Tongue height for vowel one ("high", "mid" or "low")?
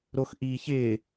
mid